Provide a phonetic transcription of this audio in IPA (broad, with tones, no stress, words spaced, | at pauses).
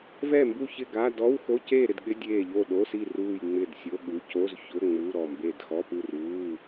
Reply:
vɛ˥˨mbu˥˨çɪ˥˨ ɡa˧˥˧ dɔ˧˥˧w xo˧˥˧ceː˥˨ɾɪ˥˨dɠɪ˧˥˧ dʲeː˥˨ ʎo˥˨ɗo˧˥˧si˥˨ ruː˥˨jŋ͡mɪ˥˨d sʲo˧˥˧ɠu˧˥˧ co˧˥˧zçʊ˧˥˧ ŋ͡mu˧˥˧ɾɔ˥˨mbe˥˨d xɔ˧˥˧pu˥˨ruː˧˥˧